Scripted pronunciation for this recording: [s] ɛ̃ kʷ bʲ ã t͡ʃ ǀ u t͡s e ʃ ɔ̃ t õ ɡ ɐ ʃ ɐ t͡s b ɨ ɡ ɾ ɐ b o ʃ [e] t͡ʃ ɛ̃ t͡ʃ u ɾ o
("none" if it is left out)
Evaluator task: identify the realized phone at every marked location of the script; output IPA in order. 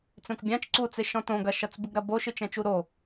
t͡s, ɨ

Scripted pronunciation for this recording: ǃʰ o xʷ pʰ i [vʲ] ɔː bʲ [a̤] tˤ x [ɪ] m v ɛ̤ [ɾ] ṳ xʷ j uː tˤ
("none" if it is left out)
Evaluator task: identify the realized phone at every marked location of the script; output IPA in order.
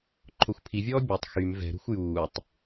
vʲ, a, y, ɾ

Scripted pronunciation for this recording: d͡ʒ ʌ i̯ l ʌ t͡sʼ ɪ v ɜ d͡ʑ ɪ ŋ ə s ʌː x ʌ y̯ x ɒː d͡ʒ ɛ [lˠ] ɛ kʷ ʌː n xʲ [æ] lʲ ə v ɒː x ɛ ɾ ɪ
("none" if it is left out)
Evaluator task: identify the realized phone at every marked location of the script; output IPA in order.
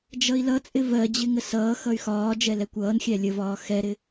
l, æ

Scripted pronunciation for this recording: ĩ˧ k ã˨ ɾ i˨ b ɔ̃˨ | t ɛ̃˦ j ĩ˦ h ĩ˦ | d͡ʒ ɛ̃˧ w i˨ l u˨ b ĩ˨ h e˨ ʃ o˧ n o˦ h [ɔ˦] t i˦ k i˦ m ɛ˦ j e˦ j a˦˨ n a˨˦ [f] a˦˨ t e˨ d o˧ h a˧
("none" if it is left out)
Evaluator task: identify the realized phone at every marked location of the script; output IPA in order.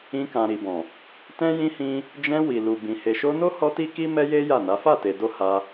ɔ˦, f

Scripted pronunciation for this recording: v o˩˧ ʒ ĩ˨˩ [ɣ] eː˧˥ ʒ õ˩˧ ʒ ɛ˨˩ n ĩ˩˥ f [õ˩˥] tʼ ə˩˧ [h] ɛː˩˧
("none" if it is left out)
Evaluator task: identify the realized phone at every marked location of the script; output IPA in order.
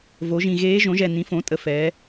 ɣ, õ˩˥, f

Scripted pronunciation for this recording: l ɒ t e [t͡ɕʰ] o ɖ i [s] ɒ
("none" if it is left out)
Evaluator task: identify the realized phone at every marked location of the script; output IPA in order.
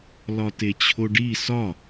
t͡ɕʰ, s

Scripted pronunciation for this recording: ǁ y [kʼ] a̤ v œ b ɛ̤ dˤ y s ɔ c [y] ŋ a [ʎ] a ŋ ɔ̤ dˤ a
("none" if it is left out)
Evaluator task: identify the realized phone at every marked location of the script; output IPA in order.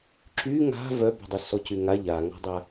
ŋ, y, ʎ

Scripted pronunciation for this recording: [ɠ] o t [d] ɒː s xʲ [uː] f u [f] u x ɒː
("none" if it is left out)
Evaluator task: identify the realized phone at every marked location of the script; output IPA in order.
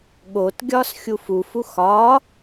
ɠ, ɡʲ, u, f

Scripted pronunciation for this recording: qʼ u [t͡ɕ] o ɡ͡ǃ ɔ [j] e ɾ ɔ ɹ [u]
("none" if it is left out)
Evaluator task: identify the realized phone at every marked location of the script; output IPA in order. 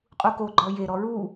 k, j, u

